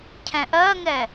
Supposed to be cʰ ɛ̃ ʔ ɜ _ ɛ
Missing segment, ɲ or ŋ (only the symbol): ŋ